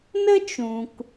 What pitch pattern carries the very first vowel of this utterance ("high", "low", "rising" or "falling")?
high